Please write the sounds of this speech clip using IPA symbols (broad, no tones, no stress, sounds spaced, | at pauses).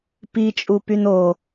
p i t͡ʃʼ u p y n o